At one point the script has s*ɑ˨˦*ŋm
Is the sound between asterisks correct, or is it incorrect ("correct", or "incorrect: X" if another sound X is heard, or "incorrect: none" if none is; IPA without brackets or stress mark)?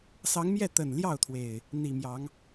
correct